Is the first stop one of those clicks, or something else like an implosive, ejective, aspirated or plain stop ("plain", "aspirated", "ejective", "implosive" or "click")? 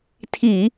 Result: aspirated